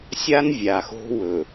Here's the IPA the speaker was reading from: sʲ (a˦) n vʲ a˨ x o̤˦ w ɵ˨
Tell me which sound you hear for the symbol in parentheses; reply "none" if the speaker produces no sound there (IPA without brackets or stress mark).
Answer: a˦